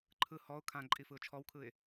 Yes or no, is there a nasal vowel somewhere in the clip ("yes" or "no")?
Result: yes